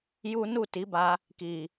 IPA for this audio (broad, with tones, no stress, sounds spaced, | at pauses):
j u˦ n u˦˨ t i˨˦ b a˧ | k i˨